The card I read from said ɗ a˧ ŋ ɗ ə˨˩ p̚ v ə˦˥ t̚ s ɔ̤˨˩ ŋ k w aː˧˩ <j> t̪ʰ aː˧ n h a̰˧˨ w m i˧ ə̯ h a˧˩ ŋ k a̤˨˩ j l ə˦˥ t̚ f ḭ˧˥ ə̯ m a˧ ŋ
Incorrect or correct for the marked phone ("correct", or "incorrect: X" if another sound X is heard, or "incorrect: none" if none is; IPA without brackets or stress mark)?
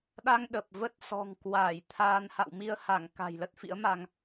correct